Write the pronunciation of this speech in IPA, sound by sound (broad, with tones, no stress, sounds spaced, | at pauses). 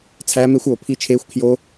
t͡sʰ æː˦ m e˦ xʷ oː˨ pʰ i˦˨ t͡ʃʰ eː˦ xʷ kʰ j o˦